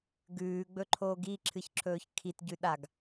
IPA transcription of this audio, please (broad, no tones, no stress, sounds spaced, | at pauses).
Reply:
ɡ ʉː ɡ͡b ɵ ǃʰ oː ɡ i ǁʰ ɨ ç ǁʰ ɵː ç kʰ i t ɟ ʉ ɗ a ɡ